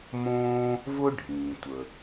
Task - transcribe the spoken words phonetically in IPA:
m õː˥ | v ʊ˥ ɖʱ ĩː˩ tʷ ə˩

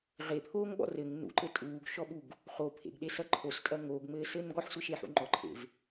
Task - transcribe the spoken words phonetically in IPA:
ʁ e pʰ oː ŋ ɓ ɔ̰ r ɘ ŋ n ṵ ǃ ɘ tʼ uː ɡ ʃ ɔ ɓ u ɡ | χ o pʰ ḛ ɡ ɗ e s ɐ ǃʰ o s tʼ ɐ ŋ oː ɡ ŋ͡m ɘː s ɘː n ɡ ɔ ħ sʷ e ʃ e ħ ṵ ŋ͡ǃ ɔ ǃʰ ḛ v

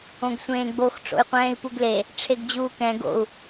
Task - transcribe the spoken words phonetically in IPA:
õ ɡ sʷ ẽː ɡ͡b o x ʈ͡ʂ o̰ y̯ qʷ ɛ̃ː i̯ p u ɡ l e | ʈ͡ʂʰ e ɡ d͡ʑ uː k ɛ̃ ɡ o̰ u̯

